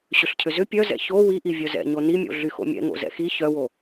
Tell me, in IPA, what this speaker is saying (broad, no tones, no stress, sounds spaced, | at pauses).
ɕ ʏ ɬ cʰ ʏ z ʏ pʲ œ z ɛ̰ ç o w i ʔ i vʲ œ z ɛ̰ ɲ o n i mʲ o̰ ɮ y x o̰ mʲ ɛ̰ ŋ o̰ z ɛ̰ x i ç œ w o